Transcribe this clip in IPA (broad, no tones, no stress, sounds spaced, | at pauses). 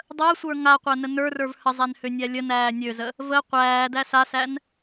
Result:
dˤ əː sʷ ə˞ ŋ a qʷ æ n ə n ə˞ r ə˞ v h ə zˤ æ n h ø nʲ æ lʲ ə n æː nʲ ø z ə | v ə qʷ æː d æ s a s æ n